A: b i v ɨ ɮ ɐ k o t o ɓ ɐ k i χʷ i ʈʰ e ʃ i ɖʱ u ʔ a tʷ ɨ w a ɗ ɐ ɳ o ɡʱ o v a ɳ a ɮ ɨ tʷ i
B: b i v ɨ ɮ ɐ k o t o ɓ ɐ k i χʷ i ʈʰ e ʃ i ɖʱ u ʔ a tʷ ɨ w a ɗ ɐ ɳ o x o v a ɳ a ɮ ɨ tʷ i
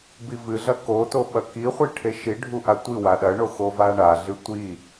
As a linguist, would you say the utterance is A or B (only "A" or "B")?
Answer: B